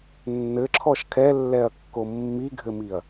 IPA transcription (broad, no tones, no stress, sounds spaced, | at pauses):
nː ɘ ǁʰ ɔ ʃ kʰ ɛ lː ɛ ɐ̯ kː o mː i ɡʱ ɘ m i ɐ̯